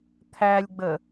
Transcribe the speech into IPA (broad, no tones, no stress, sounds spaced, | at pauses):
t̪ʰ æ lʲ ɡ͡b ə